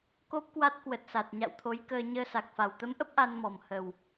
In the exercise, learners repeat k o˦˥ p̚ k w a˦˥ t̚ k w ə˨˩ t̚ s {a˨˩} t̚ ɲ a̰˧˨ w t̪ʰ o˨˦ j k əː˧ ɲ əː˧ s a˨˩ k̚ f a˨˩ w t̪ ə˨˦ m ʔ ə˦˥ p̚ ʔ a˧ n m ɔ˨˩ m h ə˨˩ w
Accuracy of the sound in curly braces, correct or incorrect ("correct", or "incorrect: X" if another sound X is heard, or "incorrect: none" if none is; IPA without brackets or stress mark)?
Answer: correct